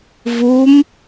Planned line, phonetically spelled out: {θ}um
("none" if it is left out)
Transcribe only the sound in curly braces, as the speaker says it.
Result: v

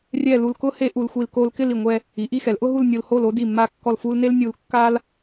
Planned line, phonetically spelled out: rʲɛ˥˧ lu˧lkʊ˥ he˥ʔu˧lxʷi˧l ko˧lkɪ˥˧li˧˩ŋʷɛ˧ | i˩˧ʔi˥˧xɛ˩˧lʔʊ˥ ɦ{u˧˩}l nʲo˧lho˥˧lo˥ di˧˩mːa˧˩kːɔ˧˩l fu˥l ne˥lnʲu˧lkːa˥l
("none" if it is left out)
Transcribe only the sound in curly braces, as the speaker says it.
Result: u˥˧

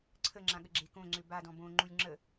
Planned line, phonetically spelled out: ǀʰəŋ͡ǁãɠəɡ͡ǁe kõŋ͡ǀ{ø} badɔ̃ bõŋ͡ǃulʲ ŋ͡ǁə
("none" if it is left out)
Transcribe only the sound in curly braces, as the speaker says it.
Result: ø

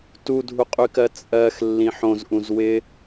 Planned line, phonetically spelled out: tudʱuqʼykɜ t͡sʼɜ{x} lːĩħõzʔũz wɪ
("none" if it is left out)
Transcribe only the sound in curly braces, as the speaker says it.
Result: x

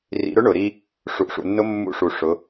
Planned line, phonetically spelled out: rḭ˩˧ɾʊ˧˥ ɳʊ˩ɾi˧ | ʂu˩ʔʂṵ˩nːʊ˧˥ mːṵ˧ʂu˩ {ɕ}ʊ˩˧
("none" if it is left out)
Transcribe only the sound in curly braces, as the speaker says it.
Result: ʂ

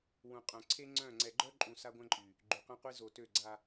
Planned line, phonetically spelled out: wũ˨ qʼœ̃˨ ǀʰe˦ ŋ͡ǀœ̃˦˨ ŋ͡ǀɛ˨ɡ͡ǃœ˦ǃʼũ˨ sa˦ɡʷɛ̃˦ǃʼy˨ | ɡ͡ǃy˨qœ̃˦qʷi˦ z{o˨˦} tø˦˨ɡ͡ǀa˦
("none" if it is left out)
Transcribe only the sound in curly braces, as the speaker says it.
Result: o˨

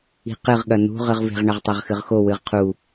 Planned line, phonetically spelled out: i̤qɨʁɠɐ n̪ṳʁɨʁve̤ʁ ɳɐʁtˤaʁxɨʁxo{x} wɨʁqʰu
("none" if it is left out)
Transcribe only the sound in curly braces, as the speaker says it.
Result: none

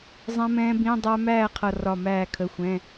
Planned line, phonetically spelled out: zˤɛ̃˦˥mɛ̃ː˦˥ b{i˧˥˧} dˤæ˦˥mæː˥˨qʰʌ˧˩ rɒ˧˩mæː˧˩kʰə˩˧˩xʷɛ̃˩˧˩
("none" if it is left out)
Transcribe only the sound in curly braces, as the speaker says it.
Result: ĩ˧˥˧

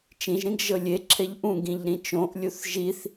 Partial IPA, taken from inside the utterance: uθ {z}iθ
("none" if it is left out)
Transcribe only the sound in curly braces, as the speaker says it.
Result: ʒ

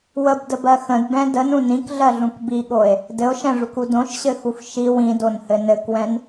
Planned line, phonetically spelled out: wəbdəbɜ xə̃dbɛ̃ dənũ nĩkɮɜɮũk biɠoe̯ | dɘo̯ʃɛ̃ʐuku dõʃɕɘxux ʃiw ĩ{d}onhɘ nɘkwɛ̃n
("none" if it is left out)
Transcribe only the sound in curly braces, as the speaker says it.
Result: d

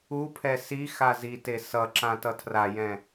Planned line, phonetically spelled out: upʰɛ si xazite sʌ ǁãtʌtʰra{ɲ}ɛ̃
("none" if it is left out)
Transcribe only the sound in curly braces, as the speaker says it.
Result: j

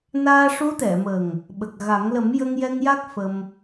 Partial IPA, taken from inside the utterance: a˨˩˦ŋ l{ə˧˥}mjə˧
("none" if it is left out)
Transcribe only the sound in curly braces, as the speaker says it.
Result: ə˨˩˦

